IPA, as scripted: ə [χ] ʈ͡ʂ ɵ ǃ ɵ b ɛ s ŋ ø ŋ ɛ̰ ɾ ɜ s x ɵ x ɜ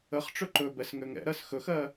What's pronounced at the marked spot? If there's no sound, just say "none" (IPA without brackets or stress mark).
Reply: χ